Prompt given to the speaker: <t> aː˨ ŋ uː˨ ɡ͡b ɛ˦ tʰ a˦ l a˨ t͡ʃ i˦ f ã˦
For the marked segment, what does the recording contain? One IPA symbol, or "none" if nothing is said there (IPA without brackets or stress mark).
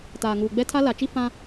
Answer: t